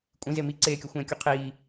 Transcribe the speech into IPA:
kʷʼ ĩ z e m i ǀ eː kʲ o xʷ ẽː kʲ u qʰ iː

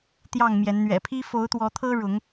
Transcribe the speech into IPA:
t̪ j ɑ˥˨ ŋ m j ɛ˨˦ n n̪ ɥ ɛ̰˨˩ pʰ i˦ f o˨˦ ʊ̯ t̪ w ɔ˨˦ t̪ʰ ɤ˦ ɻ ʊ˨˦ ŋ

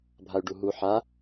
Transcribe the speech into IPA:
bʱ a y̯ ɖ u ɦ u ħ a

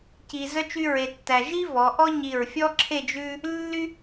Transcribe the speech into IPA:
c i˧ z œ˥ t͡ʃ y˥ ɹ e˧ tː æ˧ ʒ i˥ v ɔ˩˧ ʔ ɔ˥ ɲ i˧˩ ɹ fʲ ɔ˥ ǁʰ e˥˧ d͡ʒ ʉ˥ | lː y˥

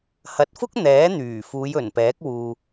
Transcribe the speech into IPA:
h ɐ˨ t̚ f ʊ˥ k̚ n̪ ɛː˨˥ n̪ yː˨˩ f uː˨˧ j ɵ˨˩ n p ɛː˨˥ k̚ w uː˧

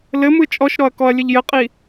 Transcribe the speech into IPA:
l ɘ m ɯ t͡ʃʼ ɔ ʃ ɾ ɔ ɐ̯ k ɔ ɐ̯ lʲ ə ʎ j ɘ qʼ i

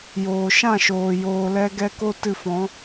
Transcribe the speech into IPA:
j oː˨ ʃ ã˦˨ ʃ oː˨ j oː˧ l ɛ˦ ɡ ɛ˦ k o˦ t ɨ˧ f ɔ̃˨˦

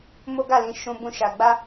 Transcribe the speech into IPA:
m o˦ ɡ a˦˨ l ĩ˧ ʃ ũ˧ b ũ˧ ʃ a˨ ɡ͡b a˧

